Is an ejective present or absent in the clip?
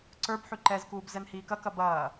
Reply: absent